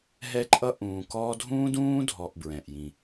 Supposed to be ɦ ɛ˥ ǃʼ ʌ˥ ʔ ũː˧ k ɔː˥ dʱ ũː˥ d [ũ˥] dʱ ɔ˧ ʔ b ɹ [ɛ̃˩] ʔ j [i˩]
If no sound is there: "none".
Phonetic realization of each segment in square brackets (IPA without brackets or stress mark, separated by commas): ũː˥, ɛ̃˩, ĩ˩